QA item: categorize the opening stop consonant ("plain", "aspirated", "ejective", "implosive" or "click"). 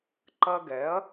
click